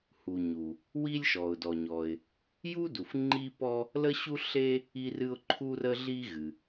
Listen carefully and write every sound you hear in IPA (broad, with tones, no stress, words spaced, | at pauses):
hu˩ ɲu˩ | wi˥lʲʃɔ˩ʊ̯ dɔ˩ɲɔ˩ɪ̯ | ju˥du˩f ŋ͡ǃi˥pɔ˥ | lə˥ɕu˥ɬe˥ | i˥rɨ˥ʊ̯ ǃʰu˥rə˥ɮi˥ ɣɨ˩